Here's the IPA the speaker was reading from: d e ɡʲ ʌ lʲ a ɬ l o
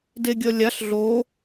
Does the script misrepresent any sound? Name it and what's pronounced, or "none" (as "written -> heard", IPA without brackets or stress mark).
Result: l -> ɮ